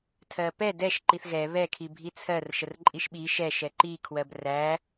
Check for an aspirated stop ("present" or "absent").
present